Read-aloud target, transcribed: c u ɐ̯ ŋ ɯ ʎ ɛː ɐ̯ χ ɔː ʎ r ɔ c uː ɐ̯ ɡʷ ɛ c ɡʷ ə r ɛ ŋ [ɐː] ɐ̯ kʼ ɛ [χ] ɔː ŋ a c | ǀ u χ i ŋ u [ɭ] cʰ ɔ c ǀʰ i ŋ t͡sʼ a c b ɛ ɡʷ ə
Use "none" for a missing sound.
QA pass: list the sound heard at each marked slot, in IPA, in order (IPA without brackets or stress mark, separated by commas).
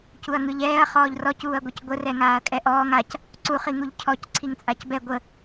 aː, ʔ, ʎ